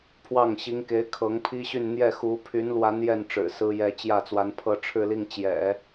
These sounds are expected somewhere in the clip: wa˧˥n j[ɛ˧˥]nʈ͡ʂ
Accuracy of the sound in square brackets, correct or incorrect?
incorrect